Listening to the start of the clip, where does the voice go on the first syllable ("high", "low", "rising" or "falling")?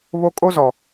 high